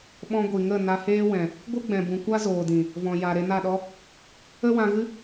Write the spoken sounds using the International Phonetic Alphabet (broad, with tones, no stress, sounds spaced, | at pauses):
ɓ ɔ̃˧ ɡʷ i˨ ŋ ə˦˨ n a˧ h eː˦ w ɛ̃˨ | ɡʷ ɨ˦ ɡ͡b ɛ̃˨ b ũ˨ kʷ a˦ z oː˨ d ĩ˨ | v ɔ̃˨ j a˨ ɾ e˧ n a˦˨ ɗ ɔ˦ | ə˦ w ã˧ ɣ ɨ˦